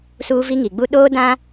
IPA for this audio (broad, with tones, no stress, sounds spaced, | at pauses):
s uː˦ v i˦ ŋ i˨ ɡ͡b u˦ ɗ oː˦ d ã˦